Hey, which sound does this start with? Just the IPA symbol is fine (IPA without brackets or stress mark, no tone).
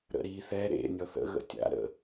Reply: ɾ